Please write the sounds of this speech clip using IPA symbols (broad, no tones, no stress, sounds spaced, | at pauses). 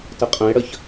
t ə qʼ ə̃ e̯ ɽ ə ç